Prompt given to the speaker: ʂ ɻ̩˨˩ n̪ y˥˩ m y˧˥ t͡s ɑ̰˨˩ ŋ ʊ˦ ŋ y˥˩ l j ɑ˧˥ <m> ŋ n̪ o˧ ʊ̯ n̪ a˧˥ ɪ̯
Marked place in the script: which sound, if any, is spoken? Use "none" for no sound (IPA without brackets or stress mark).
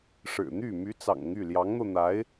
none